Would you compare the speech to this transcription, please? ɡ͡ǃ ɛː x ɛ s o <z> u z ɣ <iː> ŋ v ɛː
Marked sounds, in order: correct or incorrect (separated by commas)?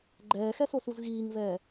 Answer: incorrect, correct